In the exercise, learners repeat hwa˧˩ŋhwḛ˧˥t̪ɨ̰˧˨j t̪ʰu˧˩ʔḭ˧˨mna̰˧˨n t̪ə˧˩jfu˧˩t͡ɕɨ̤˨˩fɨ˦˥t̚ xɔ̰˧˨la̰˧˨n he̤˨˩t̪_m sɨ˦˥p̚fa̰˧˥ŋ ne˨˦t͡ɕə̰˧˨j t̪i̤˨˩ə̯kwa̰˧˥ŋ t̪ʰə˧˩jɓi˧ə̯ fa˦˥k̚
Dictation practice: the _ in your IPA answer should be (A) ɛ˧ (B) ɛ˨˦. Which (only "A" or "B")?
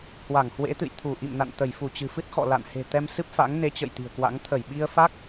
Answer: A